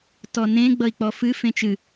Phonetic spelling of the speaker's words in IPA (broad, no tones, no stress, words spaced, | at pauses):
tɔnẽ ɡ͡bʌi̯k͡pɔfɨ fẽt͡ʃɨ